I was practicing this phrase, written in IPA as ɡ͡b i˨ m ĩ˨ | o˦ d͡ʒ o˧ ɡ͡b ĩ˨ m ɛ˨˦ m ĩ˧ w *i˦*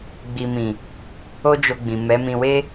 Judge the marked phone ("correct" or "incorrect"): incorrect